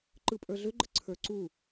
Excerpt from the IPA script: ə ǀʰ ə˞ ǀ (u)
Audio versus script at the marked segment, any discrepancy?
no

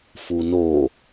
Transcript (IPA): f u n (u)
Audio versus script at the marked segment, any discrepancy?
yes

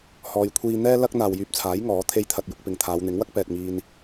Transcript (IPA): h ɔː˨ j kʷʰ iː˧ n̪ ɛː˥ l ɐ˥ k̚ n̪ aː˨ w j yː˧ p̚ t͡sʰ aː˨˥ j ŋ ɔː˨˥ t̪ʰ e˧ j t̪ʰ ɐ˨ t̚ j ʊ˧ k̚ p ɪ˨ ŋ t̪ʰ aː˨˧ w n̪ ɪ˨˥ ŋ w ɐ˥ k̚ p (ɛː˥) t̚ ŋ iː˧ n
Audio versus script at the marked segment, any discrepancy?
yes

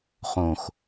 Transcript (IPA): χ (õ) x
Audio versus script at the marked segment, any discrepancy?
no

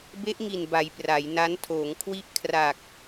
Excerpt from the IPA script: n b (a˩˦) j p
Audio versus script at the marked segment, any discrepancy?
no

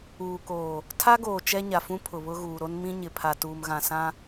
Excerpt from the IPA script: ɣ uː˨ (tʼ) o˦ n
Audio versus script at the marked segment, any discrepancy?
yes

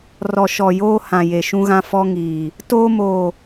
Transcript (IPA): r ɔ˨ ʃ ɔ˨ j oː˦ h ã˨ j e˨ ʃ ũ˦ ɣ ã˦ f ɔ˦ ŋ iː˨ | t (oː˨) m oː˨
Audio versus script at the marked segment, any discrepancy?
yes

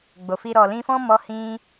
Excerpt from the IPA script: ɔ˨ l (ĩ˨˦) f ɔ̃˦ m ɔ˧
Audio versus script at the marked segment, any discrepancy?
yes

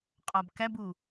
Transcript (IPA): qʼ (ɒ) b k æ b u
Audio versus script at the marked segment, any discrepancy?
no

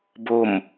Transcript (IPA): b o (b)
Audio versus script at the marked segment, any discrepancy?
yes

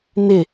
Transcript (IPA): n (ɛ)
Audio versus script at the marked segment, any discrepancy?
yes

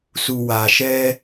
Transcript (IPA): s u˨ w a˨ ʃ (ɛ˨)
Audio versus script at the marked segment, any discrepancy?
yes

